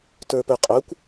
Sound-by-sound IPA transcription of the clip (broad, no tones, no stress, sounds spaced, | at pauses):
t ə˞ p ɵ qʼ ɵ kʷ